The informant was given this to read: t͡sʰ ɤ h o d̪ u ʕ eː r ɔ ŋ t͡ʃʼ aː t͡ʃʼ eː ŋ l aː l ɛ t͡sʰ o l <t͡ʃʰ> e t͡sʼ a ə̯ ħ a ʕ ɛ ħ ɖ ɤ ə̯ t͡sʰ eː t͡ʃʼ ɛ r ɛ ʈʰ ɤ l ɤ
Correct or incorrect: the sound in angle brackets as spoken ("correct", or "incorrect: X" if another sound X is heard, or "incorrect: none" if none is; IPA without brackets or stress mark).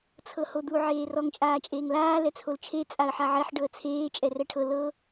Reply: correct